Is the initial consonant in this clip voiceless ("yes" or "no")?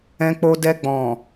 yes